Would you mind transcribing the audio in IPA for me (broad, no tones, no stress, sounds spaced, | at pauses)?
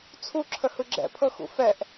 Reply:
t͡sʰ u ǁʰ ə h ɯ ɡ͡ǁ ɛ̰ pʰ ɤ x ṵ f ɛ ʔ